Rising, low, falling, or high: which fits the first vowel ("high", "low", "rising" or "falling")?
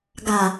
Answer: low